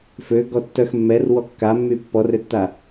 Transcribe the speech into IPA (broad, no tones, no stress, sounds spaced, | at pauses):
f ø ɡ ɔ tː œ x mː ɛ r w ɔ kː a mː y pː ɔ r ø tː a